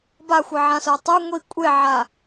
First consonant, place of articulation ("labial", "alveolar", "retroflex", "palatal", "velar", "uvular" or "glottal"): labial